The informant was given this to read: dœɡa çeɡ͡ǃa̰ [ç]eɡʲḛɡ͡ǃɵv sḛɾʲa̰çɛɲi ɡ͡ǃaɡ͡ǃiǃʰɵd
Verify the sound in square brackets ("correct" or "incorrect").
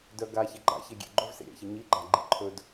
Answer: correct